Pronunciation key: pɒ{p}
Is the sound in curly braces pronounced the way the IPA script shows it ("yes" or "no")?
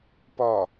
no